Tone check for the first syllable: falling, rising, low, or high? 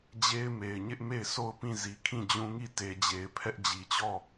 high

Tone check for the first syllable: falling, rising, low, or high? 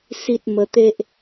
high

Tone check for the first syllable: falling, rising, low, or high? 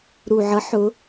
low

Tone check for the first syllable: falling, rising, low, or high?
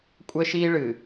high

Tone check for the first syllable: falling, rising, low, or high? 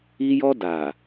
high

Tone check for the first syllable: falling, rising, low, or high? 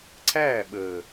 falling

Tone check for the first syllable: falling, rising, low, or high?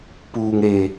low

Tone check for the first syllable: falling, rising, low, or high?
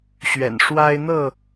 low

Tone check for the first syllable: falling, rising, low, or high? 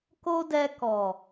high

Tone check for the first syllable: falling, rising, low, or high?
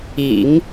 low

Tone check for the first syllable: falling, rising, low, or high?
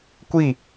falling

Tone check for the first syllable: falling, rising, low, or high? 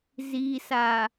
low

